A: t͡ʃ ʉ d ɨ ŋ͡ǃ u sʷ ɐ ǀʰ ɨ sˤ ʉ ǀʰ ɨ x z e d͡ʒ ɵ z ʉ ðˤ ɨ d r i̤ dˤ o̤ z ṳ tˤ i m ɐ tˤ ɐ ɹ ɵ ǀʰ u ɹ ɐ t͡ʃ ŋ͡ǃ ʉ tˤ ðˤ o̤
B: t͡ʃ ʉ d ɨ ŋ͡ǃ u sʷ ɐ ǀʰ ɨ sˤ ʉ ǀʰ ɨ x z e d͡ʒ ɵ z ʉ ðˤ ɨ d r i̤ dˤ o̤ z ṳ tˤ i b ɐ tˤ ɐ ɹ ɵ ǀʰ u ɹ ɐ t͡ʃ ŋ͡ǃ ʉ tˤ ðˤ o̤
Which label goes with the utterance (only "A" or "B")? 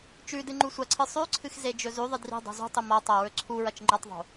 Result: A